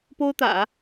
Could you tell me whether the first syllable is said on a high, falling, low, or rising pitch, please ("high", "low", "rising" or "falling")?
high